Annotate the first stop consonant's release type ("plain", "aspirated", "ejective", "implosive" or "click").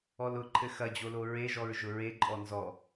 click